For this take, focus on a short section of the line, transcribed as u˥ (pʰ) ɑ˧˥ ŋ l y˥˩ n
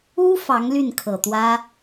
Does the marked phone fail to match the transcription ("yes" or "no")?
yes